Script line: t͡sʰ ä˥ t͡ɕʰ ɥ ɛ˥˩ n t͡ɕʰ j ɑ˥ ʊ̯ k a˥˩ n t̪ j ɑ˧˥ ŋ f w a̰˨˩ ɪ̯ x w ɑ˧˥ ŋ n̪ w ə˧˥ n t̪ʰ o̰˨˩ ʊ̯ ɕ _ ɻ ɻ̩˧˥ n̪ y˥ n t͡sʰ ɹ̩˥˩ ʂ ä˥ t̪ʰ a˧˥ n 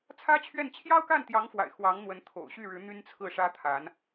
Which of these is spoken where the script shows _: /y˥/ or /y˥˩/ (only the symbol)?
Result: y˥˩